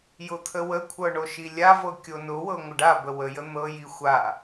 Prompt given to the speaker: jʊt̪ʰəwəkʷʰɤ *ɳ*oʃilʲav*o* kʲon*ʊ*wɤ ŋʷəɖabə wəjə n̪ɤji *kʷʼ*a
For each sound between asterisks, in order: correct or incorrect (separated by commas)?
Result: correct, incorrect, correct, incorrect